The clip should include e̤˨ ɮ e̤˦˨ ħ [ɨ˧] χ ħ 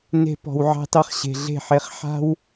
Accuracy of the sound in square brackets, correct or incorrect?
incorrect: e˧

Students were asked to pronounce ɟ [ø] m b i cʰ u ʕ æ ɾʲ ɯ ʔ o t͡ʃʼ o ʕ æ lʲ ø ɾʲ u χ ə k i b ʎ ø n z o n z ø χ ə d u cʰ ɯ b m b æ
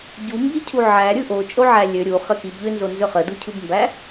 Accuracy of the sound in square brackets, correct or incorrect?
incorrect: u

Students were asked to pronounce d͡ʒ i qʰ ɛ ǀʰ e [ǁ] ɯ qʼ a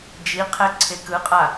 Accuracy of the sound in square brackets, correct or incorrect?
incorrect: k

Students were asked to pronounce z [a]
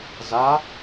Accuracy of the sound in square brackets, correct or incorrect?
correct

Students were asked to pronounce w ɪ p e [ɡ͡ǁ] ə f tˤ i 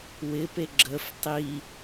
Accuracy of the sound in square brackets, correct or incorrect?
correct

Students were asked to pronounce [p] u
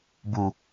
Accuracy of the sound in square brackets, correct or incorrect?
incorrect: b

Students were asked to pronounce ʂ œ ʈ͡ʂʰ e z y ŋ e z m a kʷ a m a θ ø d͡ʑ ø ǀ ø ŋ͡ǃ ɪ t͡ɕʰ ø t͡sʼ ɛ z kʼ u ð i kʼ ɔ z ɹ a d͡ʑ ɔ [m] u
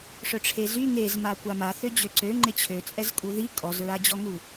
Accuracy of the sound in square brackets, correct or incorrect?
incorrect: ŋ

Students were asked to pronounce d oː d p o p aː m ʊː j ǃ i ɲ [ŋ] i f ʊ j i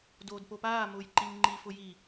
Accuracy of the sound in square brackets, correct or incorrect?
incorrect: ŋ͡ǃ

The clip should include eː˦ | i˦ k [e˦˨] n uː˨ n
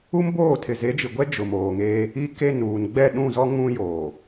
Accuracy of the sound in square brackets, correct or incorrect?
correct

